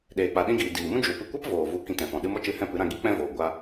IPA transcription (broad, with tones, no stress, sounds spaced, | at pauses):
ɗ eː˨ k͡p a˨ ɗ ĩ˧ ɡ iː˨ d iː˨ m ũ˦ d͡ʒ u˨ p ɨ˧ kʷ ɛ˦ p v oː˨ v u˨ k ĩ˧ t ɛ̃˨ f ɔ̃˨ ɗ ɨ˧ m ɔ˦ t͡ʃ ɨ˧ h ɛ̃˦˨ p ɨ˨˦ ɾ ã˧ ɡ i˦ k͡p ɛ̃˦ v oː˨ ɡʷ a˧